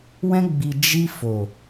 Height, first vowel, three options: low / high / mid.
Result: mid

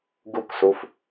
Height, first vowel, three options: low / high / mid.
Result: high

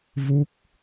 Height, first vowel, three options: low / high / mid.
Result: high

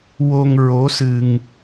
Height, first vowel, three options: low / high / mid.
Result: mid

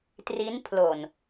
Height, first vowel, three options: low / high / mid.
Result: high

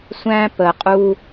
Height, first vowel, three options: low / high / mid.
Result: low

